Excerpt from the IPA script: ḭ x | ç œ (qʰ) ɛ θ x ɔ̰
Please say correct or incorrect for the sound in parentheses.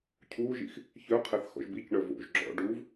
correct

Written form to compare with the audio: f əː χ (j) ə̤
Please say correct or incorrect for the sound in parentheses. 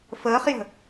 correct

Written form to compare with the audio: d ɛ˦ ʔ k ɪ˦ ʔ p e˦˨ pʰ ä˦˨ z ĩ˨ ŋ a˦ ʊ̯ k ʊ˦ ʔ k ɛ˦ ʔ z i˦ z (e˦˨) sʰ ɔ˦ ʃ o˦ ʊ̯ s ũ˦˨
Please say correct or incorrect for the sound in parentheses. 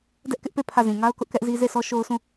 correct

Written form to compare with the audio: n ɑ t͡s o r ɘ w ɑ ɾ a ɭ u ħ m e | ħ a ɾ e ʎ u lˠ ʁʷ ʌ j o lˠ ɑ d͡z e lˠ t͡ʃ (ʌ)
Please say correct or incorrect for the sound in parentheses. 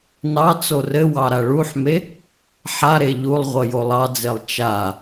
incorrect: a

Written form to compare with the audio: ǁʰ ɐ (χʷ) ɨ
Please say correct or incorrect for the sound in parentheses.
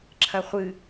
correct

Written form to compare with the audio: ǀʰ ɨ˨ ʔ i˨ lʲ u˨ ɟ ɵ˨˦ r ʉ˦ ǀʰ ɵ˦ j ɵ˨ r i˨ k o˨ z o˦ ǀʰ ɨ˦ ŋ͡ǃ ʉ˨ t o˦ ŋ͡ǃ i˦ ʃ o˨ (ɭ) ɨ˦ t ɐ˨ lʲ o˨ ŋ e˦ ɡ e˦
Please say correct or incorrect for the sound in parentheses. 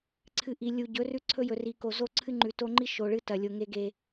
correct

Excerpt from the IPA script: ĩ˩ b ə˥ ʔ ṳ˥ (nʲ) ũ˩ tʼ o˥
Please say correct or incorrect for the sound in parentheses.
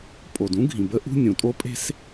correct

